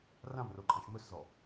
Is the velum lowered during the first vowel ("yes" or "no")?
yes